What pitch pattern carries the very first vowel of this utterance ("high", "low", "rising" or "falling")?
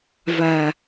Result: low